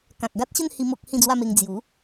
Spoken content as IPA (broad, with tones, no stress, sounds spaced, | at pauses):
k ã˨ k̚ ɡ a˦ t̚ ɕ ə˥˧ n h i˦ m o˦ k̚ h ĩ˥˧ d͡z w a˥˧ m e˧ ŋ d͡z j u˨˦